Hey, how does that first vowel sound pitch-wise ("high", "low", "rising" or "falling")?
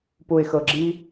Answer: low